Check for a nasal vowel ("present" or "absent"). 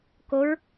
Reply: absent